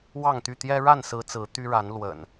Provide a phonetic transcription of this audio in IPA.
w ɑ˥˨ ŋ t̪ y˥˨ t̪ j ɛ˦ ɻ a˥˨ n s ɹ̩˨˦ t͡s ɹ̩˨˦ t̪ y˦ ɻ a˨˦ n l w ə̰˨˩ n

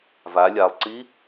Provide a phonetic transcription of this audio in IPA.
v a lʲ a lˠ ǀ i

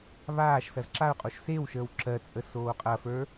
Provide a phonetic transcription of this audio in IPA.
β aː ʃ s ɐ z ǁ a ʊ̯ qʼ o ʃ s e w ʃ əː w ǁ ɜ t͡sʼ ə s oː qʼ ɐ f ə˞

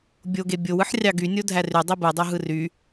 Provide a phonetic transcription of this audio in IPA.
bʲ o ɡ e bʲ o w ɯ ħ rʲ ɑ ɡ y nʲ o dʱ æ r y dˤ i b ɯ dˤ u ɦ ɯ r y

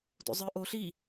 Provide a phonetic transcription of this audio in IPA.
d o̰ zˤ ə˞ ʔ o ɬ i

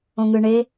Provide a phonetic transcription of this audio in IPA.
õ ŋ ɯ ɳ e

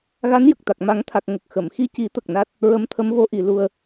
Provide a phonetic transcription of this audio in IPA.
ɣ a˧˥ n j ə˨˩ k̚ t̪ a˨˩ k̚ m a˨˩˦ ŋ t̪ʰ a˨˩ k̚ ŋ ə˨˩ k̚ x ə˨˩˨ m x i˧ c i˨˩˦ t̪ ə˨˩ k̚ n a˦˥ t̚ | ɹ ə˧˥ m t̪ʰ ə˧˥ m v o˧˥ ʔ i˨˩˨ l u˧ ə̯

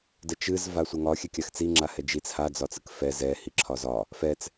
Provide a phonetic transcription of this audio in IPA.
d ə t͡ʃ ɨ z v a sʷ ə ŋ ɒ xʲ ɛ kʲ a x t͡s i ŋ͡ǁ a h ɛ d͡ʒ i t͡s h a d͡z ɒ t͡s ɨ k f ɛ z ɛ h i ǁʰ ɒ z ɒ | f ɛ t͡s

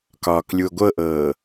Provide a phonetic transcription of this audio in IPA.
k ɒː k lʲ u o̯ ɡʷ ɤ ʔ ɤː

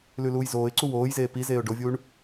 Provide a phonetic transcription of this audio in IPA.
l ʉ l uː j z oː ɪ̯ ǀ u w oː j z eː p i z eː ʊ̯ ɖ o vʲ uː ɳ

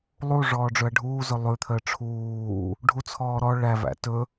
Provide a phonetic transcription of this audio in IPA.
lˠ u ʐ ɔː ɖ͡ʐ ɵ ɐ̯ ɖʱ uː z ɵ lˠ ʉ t̪ʰ əː ʈ͡ʂʰ uː | ɖʱ u t͡sʰ ɔː ɾ ɔ ɭ æ v æ̰ t ɵ

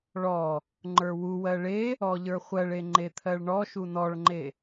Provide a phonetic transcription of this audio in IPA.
ɭ ɔ | ŋ͡ǃ ə˞ w u w ɜ ɭ e | ɔ ʎ ə˞ χʷ ɜ ɭ e ŋ͡ǃ e t̪ʰ ɜ ɭ ɳ ɔ ʃ u n ɔ ɭ ŋ͡ǃ e

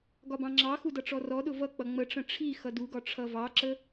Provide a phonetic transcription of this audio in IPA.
ɡ ɒ b ɑ̃ ŋ͡ǁ ɑ x u d ʌ ʈ͡ʂ ɔ r ɔ ɗ ʊ v ʌ k͡p ʌ ŋ͡m ə ʈ͡ʂ ə̃ ʈ͡ʂʰ i x ʌ d u ɡ ɒ ʈ͡ʂʰ ʌ v ɑ ǁ ə

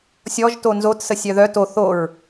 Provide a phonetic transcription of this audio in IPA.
sʲ ɔ ʒ t o n z o t s ə sʲ œ ð œ t o θ o ɹ

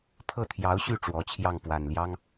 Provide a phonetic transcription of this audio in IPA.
pʰ ɤ˥˩ t̪ʰ j ɑ˧˥ ʊ̯ ɕ y˥˩ ʈ͡ʂ w ɔ˧˥ t͡ɕʰ j ɑ˥˩ ŋ p w a˨˩ n l j ɑ˥ ŋ

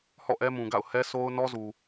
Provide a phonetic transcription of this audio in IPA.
h ɔ̰˦˨ ʔ ɛ˦ m ũ˨ ɡ a̰˦˨ ʊ̯ h ɛ˦ s o˦ ʊ̯ n ɔ˦ z u˨

